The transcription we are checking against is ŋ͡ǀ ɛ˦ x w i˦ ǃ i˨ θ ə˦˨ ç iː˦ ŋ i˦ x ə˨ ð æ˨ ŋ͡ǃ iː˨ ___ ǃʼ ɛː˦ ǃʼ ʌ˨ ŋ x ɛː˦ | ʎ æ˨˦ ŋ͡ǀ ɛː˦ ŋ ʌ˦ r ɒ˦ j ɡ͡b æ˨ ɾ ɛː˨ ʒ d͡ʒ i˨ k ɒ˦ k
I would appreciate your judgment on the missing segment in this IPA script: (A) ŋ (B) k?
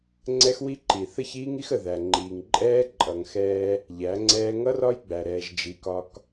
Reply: A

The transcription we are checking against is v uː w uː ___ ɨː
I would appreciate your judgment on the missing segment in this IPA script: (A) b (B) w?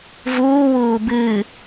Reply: A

